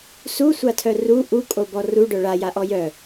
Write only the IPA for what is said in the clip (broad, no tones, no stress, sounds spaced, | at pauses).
s u sʷ a tʰ œ r u ʔ u kʼ o b ɔ r u ɖ œ ɭ a j a ʔ ɔ j œ